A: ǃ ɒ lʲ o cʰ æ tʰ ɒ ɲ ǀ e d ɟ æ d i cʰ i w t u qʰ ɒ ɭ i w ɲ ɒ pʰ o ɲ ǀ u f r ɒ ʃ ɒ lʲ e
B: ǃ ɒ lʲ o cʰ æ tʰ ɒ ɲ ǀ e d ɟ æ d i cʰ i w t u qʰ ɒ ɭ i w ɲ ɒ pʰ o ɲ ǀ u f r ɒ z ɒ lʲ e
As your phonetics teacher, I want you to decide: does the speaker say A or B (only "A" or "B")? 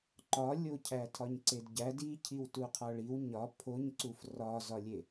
B